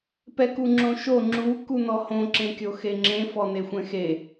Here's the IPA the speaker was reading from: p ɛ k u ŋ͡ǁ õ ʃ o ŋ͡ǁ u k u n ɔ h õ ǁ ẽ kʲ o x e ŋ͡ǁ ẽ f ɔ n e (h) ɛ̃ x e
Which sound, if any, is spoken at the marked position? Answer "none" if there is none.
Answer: xʷ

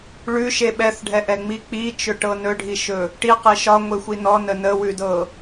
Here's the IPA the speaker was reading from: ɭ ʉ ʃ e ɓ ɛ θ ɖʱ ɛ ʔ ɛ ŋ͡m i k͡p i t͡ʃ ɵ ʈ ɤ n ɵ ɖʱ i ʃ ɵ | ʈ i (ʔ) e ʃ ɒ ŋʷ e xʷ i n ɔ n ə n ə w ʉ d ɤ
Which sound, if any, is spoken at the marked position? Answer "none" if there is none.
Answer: q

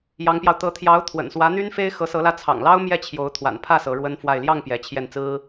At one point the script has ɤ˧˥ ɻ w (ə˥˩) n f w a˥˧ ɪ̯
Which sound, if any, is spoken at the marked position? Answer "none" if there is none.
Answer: ə˥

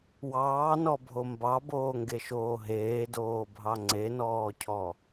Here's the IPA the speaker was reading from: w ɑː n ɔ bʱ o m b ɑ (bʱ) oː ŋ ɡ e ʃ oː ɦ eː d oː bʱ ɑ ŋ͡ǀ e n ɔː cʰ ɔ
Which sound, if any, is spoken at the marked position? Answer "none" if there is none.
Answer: b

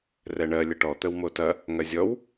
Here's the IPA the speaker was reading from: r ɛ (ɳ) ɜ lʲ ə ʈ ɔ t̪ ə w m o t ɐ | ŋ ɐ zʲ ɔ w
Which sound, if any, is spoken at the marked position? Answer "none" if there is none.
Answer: ɳ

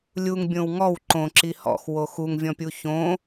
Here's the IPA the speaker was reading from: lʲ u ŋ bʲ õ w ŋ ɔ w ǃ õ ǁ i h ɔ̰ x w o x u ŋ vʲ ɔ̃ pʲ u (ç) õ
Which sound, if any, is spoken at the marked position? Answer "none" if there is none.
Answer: ç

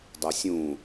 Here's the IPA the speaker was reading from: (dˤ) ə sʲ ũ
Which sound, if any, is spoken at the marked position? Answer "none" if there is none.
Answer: dˤ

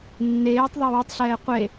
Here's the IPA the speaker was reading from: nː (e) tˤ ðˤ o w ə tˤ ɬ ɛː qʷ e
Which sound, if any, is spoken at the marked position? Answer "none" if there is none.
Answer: eː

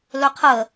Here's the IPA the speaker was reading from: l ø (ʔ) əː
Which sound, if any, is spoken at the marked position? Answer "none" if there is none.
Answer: qʰ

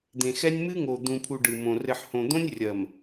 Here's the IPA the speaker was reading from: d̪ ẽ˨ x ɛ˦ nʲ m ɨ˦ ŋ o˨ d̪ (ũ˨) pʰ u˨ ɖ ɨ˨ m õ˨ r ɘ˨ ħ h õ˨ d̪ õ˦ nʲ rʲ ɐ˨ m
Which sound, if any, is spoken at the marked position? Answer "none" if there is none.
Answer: ũ˨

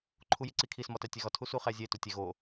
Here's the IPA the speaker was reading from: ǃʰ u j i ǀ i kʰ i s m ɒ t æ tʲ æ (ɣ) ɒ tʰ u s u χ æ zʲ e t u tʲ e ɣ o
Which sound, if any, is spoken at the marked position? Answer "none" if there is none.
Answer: ɣ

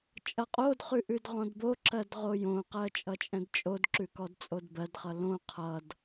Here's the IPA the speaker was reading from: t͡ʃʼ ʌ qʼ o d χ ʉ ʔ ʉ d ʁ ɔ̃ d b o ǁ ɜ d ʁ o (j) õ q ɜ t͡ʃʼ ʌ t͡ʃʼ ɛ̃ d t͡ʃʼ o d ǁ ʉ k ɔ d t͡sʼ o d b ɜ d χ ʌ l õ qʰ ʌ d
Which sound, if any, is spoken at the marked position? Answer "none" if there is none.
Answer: j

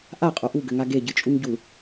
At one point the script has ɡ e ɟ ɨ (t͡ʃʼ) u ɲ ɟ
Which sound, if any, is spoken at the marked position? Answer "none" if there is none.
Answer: t͡ʃʼ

